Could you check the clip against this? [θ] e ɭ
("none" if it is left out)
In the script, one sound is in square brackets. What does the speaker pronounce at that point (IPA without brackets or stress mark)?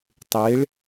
tˤ